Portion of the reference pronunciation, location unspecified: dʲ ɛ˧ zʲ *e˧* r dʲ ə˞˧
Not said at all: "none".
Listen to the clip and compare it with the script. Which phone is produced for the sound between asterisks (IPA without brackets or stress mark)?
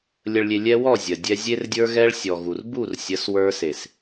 e˧